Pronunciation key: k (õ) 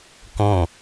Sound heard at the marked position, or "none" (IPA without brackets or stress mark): õ